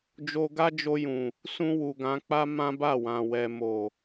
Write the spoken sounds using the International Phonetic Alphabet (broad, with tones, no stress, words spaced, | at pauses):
d͡ʒo˧ɡa˦d͡ʒo˧jũ˨ | sũ˧wu˨ɡã˨˦k͡pa˦ mã˦ba˦˨wã˨ wɛ˨mo˨